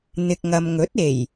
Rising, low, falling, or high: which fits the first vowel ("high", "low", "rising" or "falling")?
low